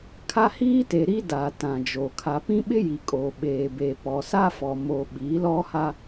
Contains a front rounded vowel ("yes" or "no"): no